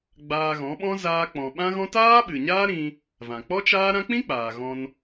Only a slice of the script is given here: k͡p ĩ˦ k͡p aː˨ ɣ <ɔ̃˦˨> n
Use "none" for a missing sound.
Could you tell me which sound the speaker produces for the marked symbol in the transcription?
ɔ̃˧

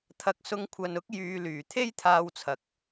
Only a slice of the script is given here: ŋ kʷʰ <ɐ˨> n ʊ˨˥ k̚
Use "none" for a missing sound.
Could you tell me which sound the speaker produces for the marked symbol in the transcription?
ɐ˨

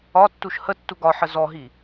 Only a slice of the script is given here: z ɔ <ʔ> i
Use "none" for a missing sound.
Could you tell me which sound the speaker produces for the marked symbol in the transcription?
ɦ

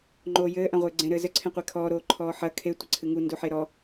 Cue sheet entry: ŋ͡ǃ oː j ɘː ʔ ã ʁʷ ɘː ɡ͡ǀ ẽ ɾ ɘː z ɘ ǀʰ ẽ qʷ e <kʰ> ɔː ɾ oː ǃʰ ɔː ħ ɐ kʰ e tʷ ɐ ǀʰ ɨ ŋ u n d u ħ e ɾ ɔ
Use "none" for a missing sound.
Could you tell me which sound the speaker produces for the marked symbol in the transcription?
kʰ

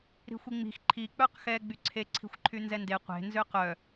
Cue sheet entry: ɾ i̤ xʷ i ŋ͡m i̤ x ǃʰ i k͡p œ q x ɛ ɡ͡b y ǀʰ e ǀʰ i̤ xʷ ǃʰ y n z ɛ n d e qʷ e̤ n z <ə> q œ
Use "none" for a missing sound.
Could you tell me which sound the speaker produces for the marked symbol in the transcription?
ø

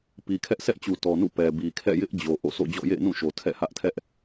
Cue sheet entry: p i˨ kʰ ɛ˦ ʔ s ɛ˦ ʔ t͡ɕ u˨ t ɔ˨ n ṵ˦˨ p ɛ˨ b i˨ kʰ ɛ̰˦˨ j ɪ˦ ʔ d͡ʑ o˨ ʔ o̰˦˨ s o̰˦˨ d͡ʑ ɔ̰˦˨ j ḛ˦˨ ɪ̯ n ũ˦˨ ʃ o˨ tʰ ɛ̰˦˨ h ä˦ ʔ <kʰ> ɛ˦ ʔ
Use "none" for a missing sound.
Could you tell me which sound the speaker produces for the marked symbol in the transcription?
tʰ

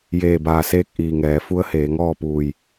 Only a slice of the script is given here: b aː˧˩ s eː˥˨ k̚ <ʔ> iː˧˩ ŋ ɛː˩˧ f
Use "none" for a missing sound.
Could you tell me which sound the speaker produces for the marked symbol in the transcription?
ʔ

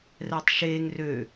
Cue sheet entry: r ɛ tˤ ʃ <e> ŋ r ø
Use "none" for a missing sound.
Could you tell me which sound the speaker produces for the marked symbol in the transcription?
e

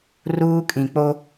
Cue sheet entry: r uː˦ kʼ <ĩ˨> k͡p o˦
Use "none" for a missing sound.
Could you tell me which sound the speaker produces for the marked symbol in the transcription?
ĩ˨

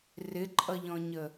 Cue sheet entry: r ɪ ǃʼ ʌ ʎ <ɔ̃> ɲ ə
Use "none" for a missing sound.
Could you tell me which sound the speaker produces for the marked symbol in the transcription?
ɔ̃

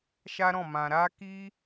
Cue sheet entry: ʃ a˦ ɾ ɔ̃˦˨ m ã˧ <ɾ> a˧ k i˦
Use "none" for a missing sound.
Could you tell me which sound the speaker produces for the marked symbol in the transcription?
ɾ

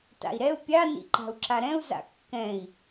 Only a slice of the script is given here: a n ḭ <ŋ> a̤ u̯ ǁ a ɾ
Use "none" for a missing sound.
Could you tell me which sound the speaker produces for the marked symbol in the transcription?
ǃ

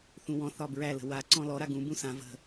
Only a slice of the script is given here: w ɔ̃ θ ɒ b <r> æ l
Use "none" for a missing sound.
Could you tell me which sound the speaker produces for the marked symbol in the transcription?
ɹ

